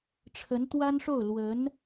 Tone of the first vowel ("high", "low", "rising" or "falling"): rising